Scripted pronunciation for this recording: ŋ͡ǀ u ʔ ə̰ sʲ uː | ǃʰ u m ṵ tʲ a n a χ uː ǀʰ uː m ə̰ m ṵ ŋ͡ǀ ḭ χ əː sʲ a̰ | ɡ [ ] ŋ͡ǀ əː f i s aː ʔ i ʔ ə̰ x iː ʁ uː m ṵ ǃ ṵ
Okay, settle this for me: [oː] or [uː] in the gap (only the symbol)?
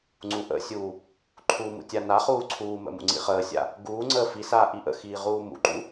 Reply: uː